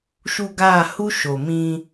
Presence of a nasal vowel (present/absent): present